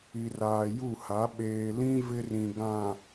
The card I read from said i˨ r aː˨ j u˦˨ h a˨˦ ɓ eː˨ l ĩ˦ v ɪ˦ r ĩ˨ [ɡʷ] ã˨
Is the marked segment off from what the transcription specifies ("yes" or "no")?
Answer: yes